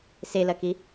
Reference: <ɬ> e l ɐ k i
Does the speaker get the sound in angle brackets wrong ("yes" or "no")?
yes